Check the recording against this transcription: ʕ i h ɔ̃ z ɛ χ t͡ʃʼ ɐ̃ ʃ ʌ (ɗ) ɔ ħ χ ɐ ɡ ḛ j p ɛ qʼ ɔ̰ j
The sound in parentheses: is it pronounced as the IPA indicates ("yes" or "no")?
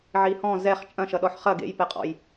yes